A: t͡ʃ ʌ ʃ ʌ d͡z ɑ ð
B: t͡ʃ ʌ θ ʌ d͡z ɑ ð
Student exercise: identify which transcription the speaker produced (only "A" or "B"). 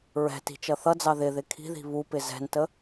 B